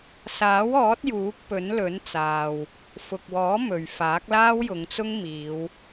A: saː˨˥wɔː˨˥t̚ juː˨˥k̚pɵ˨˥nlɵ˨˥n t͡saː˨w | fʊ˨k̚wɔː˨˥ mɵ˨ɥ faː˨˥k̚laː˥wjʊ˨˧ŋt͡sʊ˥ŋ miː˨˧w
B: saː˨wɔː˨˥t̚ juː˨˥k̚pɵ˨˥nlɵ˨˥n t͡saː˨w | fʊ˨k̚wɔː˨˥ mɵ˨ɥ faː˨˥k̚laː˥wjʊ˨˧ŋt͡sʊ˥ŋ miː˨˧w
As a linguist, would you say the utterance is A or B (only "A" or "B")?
A